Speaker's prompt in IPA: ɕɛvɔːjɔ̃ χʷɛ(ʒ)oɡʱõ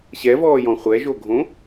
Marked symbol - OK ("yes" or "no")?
yes